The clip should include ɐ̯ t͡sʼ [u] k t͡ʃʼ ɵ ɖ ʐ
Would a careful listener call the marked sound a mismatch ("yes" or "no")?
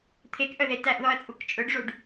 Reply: no